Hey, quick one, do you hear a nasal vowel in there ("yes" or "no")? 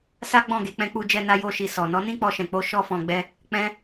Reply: yes